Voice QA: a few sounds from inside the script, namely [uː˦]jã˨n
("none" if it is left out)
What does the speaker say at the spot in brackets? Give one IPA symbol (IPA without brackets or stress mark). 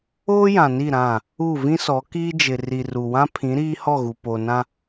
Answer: oː˦